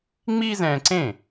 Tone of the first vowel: high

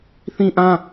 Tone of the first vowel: high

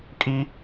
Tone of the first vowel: high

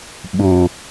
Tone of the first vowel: low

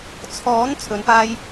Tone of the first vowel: rising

